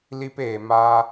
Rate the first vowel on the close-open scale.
close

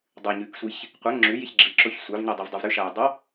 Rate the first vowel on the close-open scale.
close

